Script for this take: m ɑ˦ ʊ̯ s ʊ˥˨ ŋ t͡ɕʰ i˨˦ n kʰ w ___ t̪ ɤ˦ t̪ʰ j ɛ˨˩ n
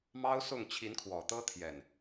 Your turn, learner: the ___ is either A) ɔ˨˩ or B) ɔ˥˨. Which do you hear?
A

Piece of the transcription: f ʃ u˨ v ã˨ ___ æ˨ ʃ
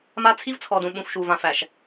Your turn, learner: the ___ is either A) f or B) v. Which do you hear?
A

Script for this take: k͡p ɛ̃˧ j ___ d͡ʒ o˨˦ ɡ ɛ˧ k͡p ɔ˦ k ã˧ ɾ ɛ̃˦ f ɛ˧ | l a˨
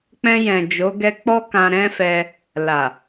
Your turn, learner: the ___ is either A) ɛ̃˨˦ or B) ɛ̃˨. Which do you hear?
B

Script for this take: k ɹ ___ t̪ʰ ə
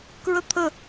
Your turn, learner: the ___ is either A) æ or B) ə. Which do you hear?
B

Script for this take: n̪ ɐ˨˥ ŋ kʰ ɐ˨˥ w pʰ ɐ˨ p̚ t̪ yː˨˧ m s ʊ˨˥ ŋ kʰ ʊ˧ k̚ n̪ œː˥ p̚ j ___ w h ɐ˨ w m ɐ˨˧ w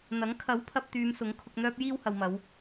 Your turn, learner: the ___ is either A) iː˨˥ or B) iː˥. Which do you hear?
B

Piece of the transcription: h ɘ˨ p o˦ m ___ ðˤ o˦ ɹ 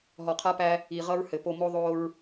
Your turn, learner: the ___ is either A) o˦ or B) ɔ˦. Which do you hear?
A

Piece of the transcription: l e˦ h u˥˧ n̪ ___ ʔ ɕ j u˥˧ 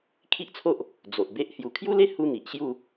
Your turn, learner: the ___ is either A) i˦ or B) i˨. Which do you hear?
B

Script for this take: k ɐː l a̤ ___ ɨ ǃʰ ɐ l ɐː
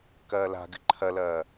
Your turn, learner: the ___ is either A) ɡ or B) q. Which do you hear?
A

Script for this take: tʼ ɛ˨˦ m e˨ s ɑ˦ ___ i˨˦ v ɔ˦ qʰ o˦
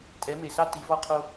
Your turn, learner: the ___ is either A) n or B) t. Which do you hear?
B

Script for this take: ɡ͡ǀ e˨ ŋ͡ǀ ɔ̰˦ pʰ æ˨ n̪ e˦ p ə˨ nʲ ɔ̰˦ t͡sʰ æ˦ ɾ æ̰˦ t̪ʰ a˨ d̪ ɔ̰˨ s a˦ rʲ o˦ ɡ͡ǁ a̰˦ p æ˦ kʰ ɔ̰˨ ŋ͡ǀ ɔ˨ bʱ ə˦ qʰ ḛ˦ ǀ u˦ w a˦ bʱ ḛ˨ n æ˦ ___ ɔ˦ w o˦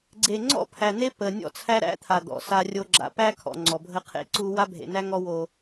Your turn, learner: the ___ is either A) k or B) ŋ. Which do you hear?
B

